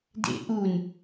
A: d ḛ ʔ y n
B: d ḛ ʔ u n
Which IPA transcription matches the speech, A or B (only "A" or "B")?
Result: B